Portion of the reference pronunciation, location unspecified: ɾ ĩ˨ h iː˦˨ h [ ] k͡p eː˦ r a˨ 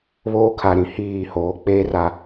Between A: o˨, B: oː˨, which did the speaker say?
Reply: B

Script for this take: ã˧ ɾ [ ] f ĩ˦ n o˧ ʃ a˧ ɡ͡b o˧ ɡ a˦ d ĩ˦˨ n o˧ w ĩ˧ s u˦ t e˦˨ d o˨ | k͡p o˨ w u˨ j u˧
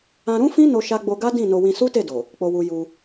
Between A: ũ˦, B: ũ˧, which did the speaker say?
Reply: A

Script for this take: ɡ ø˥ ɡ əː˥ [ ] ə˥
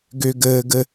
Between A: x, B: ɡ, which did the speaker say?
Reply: B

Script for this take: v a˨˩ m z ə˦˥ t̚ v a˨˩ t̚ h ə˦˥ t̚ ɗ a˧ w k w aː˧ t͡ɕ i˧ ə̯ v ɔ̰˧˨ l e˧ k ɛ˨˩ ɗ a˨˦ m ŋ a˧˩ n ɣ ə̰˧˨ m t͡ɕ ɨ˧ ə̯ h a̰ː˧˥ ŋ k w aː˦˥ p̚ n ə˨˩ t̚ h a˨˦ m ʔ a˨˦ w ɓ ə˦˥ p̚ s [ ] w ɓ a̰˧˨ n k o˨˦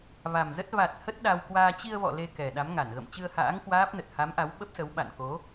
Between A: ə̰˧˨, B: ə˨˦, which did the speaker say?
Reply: B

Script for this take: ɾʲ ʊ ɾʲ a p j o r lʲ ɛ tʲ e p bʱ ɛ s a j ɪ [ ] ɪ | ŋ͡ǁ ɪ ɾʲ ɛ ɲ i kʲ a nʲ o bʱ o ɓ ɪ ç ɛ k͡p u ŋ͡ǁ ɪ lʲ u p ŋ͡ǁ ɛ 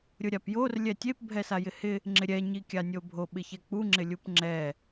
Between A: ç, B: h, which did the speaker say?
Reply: B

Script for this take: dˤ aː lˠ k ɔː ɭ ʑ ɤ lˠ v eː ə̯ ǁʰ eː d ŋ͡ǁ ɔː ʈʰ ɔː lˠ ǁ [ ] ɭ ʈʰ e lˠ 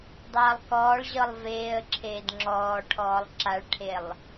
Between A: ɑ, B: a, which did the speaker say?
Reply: B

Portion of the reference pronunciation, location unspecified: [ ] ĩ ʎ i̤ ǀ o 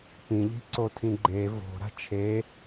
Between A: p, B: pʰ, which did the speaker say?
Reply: A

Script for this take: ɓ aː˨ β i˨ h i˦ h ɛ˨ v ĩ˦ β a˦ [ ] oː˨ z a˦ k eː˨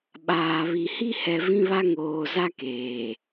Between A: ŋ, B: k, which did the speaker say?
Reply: A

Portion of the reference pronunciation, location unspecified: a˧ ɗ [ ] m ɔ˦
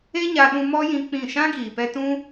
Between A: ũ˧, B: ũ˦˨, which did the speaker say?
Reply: A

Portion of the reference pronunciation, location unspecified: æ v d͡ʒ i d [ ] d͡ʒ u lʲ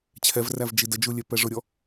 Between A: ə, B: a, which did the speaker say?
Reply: A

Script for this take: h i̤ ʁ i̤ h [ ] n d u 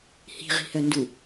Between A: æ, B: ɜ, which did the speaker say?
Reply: B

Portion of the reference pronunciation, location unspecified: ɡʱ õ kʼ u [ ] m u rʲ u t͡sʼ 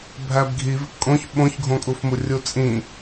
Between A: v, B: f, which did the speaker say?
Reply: B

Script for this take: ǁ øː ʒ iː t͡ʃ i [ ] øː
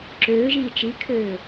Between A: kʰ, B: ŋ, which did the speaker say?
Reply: A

